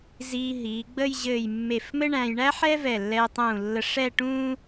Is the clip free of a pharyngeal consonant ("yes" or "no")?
no